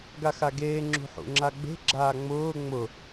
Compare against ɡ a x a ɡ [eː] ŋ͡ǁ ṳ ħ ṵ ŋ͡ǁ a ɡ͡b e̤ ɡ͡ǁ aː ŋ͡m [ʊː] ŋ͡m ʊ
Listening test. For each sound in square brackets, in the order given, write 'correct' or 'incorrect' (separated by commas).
correct, correct